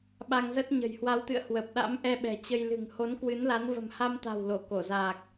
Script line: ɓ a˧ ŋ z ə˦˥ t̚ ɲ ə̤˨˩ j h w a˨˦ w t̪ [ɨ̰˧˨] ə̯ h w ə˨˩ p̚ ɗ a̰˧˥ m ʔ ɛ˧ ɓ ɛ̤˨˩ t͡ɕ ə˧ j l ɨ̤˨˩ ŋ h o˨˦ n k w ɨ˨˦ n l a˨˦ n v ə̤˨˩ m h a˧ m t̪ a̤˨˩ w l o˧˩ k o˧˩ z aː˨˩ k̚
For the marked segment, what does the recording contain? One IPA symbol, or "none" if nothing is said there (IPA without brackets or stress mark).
ɨ̰˧˨